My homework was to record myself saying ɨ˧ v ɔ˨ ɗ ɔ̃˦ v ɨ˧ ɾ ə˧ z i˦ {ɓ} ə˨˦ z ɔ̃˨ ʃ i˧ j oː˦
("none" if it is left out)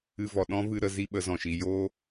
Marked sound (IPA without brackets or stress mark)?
ɓ